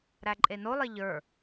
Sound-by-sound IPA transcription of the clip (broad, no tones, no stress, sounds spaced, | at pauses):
ɾ æ ǃʼ e n o lˠ e ʎ ə˞